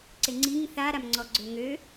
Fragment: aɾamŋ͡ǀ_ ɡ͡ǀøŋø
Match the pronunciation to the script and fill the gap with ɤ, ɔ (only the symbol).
ɔ